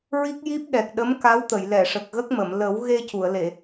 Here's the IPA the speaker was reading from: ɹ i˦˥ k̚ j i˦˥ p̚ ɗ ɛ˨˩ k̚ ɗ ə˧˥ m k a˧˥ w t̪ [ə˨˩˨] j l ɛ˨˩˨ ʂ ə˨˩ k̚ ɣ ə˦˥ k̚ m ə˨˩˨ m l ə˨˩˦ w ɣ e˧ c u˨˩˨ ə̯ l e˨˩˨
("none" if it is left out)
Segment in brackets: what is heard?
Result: ə˨˩˨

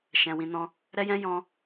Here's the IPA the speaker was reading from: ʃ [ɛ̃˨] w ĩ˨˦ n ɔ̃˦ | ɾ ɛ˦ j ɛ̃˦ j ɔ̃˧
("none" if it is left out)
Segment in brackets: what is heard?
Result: ɛ̃˨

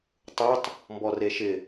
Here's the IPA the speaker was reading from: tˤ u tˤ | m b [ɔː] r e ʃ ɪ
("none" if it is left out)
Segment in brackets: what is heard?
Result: ɔ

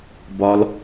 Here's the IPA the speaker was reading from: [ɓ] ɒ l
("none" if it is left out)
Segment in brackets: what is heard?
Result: b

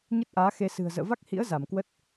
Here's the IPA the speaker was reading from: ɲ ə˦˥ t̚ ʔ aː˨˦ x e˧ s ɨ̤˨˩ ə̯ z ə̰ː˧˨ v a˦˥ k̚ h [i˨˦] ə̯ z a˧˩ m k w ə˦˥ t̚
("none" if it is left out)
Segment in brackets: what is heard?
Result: ḭ˧˥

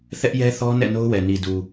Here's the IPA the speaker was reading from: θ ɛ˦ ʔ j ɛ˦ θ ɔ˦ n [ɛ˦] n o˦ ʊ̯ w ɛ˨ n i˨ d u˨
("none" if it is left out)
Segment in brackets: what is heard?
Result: ɛ̰˦˨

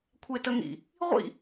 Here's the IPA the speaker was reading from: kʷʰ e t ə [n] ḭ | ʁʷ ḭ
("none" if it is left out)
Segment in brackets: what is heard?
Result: ŋ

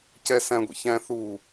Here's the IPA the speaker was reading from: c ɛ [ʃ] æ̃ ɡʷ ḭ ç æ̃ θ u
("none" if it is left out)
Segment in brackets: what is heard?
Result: s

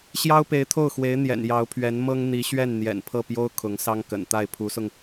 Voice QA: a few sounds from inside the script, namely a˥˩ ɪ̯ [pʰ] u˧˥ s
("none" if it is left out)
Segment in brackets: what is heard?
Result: pʰ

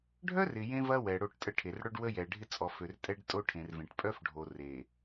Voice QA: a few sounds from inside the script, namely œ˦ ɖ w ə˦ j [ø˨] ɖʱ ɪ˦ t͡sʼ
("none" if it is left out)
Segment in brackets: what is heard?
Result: ɛ˨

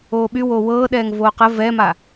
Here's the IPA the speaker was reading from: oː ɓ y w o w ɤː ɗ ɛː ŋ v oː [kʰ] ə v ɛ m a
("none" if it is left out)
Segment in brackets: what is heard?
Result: q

